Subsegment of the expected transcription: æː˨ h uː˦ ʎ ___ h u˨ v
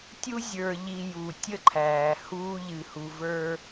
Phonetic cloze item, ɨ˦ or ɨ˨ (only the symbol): ɨ˨